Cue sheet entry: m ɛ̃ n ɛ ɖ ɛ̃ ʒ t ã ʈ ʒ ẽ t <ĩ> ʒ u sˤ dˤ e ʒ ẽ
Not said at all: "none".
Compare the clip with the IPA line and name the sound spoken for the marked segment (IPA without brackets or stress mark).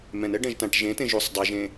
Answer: ẽ